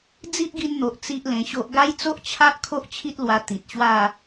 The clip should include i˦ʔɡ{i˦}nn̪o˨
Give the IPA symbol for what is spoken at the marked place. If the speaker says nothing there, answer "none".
i˧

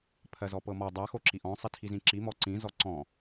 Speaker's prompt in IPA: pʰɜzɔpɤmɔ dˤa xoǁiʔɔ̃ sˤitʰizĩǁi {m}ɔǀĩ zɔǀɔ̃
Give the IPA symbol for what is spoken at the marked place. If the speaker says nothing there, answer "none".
m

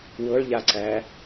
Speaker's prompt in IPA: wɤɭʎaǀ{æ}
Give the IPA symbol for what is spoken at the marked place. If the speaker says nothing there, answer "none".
æ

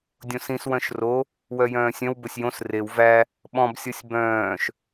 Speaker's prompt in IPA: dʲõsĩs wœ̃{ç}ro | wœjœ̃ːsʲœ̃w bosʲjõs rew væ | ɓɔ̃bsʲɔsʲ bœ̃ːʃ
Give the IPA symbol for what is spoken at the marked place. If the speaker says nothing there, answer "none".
ʃ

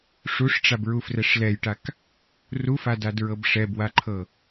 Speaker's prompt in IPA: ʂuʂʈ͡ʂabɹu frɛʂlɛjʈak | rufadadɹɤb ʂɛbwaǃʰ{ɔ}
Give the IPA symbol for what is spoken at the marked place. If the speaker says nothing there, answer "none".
ɤ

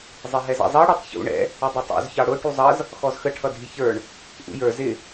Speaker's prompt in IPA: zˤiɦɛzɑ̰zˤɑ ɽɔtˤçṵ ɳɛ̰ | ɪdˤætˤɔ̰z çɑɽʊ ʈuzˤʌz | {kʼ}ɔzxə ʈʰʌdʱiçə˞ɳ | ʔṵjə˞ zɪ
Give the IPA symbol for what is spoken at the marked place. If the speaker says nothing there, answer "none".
x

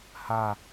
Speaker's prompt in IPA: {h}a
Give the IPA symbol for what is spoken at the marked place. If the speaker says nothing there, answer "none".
h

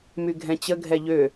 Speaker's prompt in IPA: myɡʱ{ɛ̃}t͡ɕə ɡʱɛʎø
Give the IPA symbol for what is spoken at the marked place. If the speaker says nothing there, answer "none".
ɛ̃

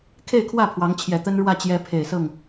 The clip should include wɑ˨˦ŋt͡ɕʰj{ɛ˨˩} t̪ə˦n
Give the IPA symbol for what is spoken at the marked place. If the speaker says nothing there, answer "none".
ɛ˨˩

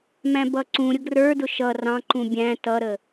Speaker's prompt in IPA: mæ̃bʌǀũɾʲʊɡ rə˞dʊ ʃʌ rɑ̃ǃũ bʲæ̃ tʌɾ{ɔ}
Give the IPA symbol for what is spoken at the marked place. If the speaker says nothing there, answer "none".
ə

